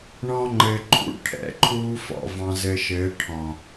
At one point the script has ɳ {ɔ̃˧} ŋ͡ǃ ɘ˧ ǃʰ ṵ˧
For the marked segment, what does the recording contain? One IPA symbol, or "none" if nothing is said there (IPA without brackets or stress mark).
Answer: ɔ̃˦